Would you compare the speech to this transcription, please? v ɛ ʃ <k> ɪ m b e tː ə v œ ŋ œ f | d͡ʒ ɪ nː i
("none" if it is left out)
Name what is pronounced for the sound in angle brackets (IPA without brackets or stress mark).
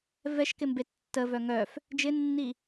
k